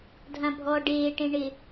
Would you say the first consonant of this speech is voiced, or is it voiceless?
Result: voiced